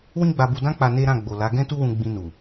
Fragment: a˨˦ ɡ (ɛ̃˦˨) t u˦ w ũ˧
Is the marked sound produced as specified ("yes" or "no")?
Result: no